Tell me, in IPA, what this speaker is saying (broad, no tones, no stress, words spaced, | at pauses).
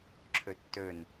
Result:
ǁʰɵtːɵn